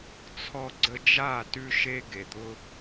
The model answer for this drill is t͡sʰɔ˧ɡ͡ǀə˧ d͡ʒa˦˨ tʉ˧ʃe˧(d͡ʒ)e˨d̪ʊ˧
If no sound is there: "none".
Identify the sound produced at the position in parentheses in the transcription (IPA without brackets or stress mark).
ɡ